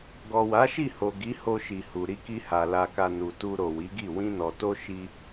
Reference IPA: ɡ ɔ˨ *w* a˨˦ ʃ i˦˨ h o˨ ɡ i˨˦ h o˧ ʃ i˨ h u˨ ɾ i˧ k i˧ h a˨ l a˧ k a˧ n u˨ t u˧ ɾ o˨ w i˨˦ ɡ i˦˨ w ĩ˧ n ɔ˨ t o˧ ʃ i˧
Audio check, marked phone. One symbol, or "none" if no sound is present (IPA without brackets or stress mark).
w